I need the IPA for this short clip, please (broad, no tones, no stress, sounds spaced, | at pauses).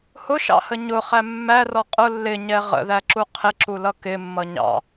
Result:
h ʊ ʃ ɑ̰ h ə ɲ ʊ χ æ mː æ r ɔ qʼ ʊ lː ɪ ɲ ɛ ʁ ə̰ ð æ ǁ u qʰ ɪ ǁ u l ʌ k ɪ mː ʌ ɲ ɑ̰